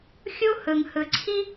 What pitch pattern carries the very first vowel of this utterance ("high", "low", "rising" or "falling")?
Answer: high